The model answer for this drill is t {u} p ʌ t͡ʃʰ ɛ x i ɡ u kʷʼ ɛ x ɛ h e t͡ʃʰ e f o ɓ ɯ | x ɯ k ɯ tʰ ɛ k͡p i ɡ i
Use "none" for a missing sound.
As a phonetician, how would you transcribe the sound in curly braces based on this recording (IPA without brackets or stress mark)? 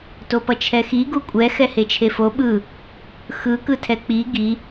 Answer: o